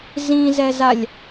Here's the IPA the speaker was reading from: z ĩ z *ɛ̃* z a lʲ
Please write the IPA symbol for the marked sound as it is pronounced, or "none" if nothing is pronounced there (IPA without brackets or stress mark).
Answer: ɛ